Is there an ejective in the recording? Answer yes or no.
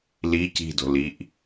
no